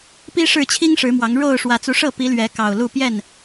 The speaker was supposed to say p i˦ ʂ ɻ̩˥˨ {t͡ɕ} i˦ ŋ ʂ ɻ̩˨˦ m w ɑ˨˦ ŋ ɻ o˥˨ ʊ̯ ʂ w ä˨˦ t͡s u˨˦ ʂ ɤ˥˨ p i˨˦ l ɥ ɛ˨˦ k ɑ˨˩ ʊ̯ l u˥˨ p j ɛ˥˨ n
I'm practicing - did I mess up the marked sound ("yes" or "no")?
yes